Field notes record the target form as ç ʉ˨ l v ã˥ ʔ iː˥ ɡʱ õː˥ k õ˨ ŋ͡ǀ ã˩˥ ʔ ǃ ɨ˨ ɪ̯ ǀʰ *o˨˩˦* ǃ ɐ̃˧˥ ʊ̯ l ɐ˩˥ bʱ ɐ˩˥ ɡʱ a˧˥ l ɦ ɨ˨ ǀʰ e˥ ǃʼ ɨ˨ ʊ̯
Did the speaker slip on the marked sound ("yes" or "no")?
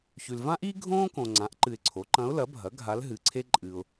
yes